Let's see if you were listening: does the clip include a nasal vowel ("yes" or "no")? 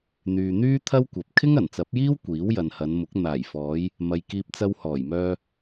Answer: no